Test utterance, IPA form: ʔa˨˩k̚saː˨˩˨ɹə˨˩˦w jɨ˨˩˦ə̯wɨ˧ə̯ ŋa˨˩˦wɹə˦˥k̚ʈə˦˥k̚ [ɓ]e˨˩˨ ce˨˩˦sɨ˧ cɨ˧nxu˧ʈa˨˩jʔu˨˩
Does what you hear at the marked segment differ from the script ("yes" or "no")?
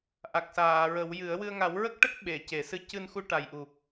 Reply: no